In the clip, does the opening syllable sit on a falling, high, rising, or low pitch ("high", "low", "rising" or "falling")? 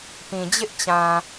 low